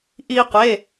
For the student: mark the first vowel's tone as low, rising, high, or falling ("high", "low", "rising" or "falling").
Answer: high